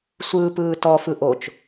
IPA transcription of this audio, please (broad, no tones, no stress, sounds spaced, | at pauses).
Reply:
sʷ ɯː p ɯː t ɔ f ɯ ʔ o t͡ʃ